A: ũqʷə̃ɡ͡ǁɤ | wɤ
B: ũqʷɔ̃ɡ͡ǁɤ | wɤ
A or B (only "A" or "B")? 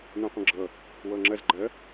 A